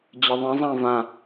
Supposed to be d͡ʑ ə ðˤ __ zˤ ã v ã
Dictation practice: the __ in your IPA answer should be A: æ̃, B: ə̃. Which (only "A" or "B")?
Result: B